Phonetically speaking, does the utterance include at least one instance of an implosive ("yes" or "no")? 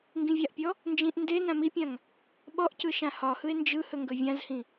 yes